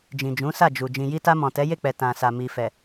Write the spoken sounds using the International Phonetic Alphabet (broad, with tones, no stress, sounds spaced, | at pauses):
d͡ʒ ĩ˨ d͡ʒ ũ˨˦ s a˦˨ d͡ʒ u˨ d͡ʒ ĩ˨ j i˧ t a˧ m ɔ̃˨ t ɛ˨˦ j e˦˨ k͡p ɛ˨ t ã˨ s a˨ m i˨ f ɛ˨